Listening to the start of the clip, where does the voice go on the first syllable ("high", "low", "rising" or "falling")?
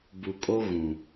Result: low